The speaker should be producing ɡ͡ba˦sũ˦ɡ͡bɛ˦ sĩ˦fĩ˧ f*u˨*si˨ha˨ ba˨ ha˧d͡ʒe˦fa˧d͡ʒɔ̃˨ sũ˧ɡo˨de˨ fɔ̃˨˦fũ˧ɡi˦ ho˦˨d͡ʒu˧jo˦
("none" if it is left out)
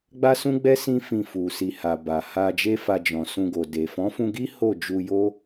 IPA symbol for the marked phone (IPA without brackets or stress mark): u˨